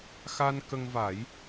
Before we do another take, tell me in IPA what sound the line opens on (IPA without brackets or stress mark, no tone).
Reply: x